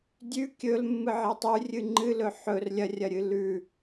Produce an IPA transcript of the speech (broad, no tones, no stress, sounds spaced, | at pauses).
dʲ ʉ kʲ ɵ l mː ɨ ʕ e tˤ ʉ rʲ ɨ ŋ͡ǃ ɨ l ɵ ħ ɵ r lʲ ɐ rʲ ɐ ɾʲ ɨ l ʉ